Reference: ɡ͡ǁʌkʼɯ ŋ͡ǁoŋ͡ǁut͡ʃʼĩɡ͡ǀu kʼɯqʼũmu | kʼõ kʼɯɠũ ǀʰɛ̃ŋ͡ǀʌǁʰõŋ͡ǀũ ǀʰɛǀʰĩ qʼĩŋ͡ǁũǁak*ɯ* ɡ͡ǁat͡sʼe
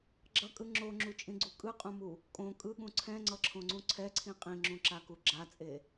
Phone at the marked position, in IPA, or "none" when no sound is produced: u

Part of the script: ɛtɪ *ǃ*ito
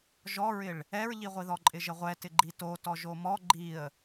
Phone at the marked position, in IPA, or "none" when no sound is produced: ɡ͡ǃ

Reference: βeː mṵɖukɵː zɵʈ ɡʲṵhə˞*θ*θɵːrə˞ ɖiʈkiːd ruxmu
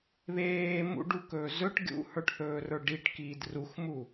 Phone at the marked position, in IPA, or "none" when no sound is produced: ʈ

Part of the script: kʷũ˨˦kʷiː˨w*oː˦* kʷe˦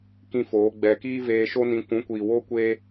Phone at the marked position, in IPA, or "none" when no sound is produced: oː˦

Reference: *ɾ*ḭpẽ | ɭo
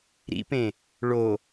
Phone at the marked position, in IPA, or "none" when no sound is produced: ɾ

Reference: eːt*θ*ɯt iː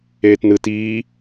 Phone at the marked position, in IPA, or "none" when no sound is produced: n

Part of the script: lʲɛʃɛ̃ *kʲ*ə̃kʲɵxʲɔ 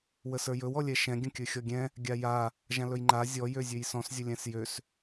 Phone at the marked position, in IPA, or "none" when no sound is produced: ɡʲ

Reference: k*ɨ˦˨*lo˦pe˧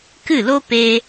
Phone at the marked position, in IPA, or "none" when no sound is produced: ɨ˦˨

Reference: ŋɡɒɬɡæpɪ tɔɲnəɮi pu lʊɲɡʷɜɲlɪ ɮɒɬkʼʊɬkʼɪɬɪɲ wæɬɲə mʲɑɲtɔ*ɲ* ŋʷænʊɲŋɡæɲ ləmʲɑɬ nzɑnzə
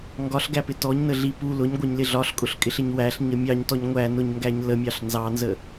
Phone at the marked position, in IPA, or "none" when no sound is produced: ɲ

